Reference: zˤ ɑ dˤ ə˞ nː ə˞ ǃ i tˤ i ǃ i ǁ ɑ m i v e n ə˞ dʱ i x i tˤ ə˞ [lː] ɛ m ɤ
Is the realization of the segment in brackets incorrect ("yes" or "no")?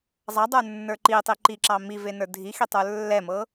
no